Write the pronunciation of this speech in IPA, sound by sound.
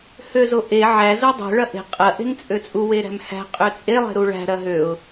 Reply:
h ø z o ʔ e ʕ æ z o dˤ e̤ ɭ ɐ ʔ e̤ qʼ ɐ ʔ e̤ n t͡sʼ ø t͡sʼ u w e ɾ æ̤ m h æ̤ qʼ ø t͡sʼ e lˠ e̤ ɾ u ɭ æ̤ ɾ ɐ ɦ ø ʊ̯

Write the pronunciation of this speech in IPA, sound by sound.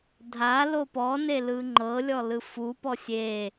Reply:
dʱ a l o p ɔ n e l ɯ ŋ͡ǃ ɤ lʲ ɔ l ɯ f u p ɔ sʲ e

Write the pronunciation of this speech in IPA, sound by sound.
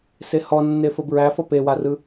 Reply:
s e h ɔ nː e f ə b ɹ æ f ʌ p e w a r ɯ

